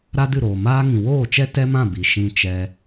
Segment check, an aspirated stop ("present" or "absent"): absent